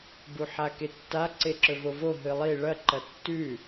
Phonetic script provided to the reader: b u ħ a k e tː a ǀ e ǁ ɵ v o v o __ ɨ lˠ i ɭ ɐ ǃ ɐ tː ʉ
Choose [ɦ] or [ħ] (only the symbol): ɦ